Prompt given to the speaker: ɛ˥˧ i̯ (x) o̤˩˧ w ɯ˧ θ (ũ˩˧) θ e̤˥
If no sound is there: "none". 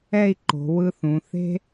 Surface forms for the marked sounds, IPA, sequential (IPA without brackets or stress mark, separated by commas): ǃ, ũ˩˧